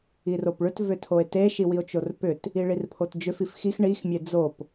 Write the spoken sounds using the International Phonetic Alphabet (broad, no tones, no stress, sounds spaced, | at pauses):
i r o p ɭ ʏ t v ʏ tʰ o e̯ t e ʃ i w i o̯ t͡ʃ o r p ʏ t | i ɭ i r pʰ o t d͡ʒ ʏ f i f x i x ɳ i x mʲ e d͡z o p